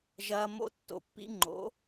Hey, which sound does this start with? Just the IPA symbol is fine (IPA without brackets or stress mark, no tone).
ʒ